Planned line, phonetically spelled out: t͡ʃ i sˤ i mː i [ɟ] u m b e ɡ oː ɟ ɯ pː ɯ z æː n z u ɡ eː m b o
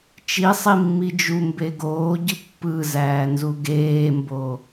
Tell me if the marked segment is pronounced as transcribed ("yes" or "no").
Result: no